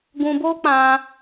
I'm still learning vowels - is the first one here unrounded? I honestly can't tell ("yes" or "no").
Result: no